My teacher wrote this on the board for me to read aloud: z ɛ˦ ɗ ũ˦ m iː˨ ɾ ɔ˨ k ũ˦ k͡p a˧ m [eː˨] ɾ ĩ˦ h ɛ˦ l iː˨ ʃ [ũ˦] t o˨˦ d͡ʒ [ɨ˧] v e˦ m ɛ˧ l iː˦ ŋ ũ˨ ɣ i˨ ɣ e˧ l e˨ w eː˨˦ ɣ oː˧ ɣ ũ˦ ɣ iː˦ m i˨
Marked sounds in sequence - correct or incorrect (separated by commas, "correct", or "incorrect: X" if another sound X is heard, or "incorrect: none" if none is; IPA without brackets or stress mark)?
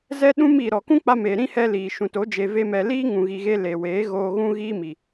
correct, incorrect: ũ˨, incorrect: e˧